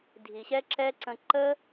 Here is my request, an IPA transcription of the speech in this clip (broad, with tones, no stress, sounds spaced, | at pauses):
dʱ i˨ ɕ ɛ˦ ǁ ɛ˦ ǀ ə̃˧ ǃ ə˦